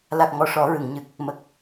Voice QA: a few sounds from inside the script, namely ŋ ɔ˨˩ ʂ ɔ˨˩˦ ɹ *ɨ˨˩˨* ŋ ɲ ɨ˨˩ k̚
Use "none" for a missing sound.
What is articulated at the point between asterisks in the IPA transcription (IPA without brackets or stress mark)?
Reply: ɨ˨˩˨